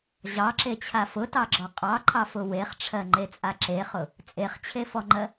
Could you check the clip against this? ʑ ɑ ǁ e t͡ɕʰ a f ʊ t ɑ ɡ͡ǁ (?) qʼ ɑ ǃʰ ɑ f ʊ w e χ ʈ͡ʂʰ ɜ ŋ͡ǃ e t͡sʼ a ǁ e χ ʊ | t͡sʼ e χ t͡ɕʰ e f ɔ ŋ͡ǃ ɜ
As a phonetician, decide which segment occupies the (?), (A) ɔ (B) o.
A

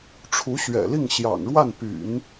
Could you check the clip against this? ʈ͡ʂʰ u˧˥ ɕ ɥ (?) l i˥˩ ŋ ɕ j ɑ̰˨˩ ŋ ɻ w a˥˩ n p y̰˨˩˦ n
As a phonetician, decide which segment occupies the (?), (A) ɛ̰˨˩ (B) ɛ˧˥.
A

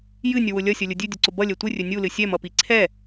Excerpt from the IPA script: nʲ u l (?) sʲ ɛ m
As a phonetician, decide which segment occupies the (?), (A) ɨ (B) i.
A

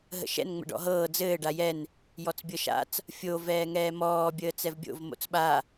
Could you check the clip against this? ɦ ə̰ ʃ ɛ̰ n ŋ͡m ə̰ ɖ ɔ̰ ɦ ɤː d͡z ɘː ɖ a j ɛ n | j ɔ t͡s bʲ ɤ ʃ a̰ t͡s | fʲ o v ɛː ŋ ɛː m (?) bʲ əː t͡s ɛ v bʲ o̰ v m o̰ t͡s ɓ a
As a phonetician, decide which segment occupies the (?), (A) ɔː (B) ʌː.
A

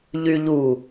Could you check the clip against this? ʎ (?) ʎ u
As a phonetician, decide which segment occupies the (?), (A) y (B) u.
A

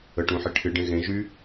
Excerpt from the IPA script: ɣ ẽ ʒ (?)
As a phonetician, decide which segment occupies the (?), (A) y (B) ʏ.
A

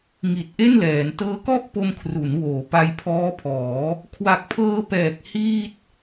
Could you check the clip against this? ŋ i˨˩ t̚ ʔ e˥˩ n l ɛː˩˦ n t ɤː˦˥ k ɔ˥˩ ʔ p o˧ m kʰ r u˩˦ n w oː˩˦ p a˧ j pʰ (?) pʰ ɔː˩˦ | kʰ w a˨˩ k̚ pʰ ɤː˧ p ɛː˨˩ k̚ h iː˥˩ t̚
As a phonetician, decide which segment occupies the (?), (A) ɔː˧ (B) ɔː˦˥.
B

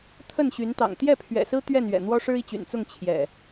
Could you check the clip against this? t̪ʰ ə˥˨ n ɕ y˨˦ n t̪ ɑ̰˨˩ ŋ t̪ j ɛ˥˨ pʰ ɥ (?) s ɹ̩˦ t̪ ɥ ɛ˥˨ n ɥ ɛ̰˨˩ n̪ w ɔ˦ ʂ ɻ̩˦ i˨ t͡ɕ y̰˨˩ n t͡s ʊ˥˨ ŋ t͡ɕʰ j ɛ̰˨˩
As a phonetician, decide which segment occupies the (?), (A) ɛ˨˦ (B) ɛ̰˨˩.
B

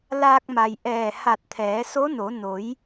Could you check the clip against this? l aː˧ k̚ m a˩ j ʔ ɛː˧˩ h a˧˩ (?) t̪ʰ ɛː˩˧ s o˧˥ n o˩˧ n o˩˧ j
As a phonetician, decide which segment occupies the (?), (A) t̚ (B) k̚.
A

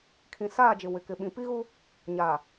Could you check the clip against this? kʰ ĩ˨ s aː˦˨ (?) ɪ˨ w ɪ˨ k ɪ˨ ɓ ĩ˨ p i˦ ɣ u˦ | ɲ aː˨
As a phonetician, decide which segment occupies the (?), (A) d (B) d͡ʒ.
B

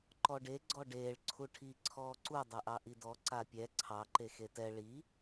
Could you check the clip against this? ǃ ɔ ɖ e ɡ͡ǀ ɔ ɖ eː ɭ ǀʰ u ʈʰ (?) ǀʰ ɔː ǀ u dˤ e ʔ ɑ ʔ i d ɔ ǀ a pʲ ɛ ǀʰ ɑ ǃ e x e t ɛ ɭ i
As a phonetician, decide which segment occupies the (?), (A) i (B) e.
A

